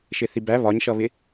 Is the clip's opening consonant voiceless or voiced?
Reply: voiceless